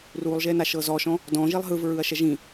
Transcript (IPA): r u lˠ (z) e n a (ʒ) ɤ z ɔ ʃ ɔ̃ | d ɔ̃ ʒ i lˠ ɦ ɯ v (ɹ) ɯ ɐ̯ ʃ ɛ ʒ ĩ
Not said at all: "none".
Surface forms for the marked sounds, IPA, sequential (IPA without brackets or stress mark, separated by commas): ʒ, ʃ, ɹ